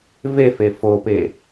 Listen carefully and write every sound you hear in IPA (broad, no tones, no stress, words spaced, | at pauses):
vefe fope